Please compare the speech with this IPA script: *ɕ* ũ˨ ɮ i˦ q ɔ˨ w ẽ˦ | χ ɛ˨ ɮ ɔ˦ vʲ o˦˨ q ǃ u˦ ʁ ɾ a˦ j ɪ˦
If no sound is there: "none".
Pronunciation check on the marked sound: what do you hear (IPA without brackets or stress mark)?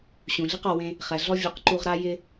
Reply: ɕ